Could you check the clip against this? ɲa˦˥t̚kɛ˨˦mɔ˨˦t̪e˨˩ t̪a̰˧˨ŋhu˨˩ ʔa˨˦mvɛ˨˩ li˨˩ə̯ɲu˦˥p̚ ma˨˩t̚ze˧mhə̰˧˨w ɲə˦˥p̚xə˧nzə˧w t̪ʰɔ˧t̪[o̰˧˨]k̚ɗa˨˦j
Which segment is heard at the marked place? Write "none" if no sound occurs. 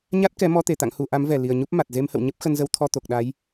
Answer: o˨˩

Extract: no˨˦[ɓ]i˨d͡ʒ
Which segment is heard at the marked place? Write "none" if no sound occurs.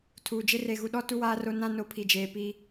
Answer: pʰ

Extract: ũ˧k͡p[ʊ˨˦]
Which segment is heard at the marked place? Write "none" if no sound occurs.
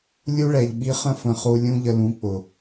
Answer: ʊ˨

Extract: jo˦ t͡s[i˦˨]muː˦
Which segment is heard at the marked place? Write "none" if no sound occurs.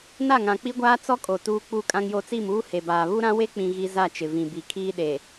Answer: i˦˨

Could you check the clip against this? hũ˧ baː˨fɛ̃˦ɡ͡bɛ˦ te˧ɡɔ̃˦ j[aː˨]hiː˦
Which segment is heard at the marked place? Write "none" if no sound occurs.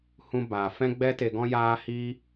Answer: aː˦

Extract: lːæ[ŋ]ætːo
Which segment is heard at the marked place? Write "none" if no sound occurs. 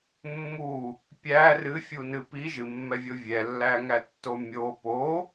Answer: ŋ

